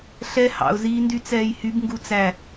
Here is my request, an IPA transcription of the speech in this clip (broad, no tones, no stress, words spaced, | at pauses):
ɬɛ hɑ̰ʊ̯ziːndy t͡sɛːjhyb ŋɡut͡sæ